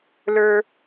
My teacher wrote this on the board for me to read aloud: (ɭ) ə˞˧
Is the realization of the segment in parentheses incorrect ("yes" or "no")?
yes